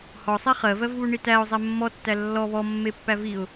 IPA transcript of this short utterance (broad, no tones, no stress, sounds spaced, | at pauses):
h ɔ sˤ ɛ χ ɜ v ɜ v β u ɳ i t æ ʊ̯ zˤ ɛ mː ɔ tː æ lː ɔ β ɔ mː e pː æ v i ʊ̯